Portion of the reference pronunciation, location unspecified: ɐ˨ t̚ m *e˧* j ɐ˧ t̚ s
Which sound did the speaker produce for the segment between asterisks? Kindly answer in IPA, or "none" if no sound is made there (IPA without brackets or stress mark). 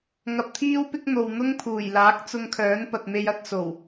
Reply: e˧